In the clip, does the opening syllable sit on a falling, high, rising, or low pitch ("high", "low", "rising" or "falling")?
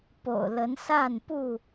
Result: low